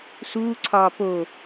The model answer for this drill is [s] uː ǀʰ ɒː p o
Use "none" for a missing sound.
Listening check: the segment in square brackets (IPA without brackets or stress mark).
s